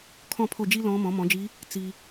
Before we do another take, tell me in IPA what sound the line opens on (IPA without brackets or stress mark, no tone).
kʰ